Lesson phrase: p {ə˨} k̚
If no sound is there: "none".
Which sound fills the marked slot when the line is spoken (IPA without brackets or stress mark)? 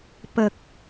ə˨